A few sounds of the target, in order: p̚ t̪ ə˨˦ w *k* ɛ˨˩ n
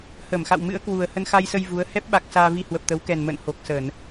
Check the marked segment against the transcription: correct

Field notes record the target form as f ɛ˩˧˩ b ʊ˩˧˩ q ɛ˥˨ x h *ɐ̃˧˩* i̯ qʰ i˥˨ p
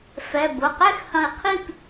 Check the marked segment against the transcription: correct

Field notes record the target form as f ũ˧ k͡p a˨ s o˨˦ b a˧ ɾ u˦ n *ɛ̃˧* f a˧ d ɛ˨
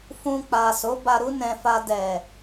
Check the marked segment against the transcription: correct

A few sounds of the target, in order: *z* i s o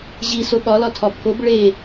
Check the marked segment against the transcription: incorrect: ʑ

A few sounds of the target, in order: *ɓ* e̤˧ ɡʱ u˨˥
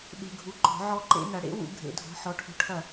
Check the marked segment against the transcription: correct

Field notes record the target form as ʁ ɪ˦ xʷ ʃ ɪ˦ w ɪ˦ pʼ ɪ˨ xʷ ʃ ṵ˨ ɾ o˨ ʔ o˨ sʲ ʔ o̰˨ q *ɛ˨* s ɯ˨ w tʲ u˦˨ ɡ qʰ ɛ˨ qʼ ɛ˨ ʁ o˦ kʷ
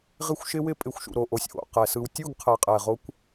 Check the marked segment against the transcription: correct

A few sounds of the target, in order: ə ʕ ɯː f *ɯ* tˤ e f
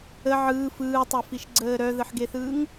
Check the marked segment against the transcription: incorrect: ɯː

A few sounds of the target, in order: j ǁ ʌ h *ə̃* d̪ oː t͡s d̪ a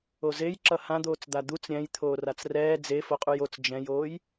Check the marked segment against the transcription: incorrect: ã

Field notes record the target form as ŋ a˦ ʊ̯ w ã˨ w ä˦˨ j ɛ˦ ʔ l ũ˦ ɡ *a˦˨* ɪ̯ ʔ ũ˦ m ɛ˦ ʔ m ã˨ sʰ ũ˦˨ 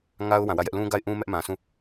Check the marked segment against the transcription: correct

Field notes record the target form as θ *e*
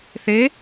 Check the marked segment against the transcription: correct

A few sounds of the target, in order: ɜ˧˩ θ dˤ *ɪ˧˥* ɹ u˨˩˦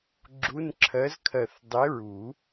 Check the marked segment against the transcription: correct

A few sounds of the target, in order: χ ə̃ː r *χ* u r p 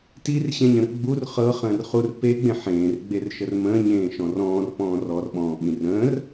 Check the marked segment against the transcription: correct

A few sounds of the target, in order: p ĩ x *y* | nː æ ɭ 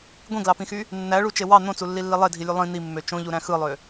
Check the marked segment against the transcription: correct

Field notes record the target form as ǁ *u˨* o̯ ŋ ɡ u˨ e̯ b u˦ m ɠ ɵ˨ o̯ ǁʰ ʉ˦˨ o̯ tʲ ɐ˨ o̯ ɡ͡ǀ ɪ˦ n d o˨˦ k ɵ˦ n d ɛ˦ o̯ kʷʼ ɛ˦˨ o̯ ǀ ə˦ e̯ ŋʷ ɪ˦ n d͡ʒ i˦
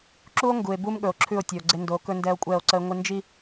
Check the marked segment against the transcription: incorrect: u˦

